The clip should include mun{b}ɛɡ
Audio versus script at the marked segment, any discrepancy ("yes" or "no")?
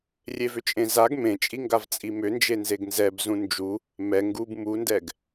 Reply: yes